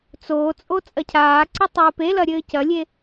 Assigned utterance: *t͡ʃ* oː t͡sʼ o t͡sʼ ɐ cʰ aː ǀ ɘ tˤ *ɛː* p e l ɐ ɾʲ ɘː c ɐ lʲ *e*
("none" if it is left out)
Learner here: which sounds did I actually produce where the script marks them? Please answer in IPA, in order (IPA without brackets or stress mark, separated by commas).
t͡s, ɨː, e